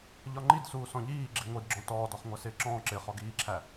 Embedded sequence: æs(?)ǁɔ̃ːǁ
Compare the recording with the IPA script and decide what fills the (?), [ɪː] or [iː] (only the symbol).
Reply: ɪː